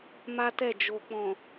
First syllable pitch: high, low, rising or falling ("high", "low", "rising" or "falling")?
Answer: high